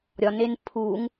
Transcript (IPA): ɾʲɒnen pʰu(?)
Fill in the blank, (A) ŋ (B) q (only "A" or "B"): A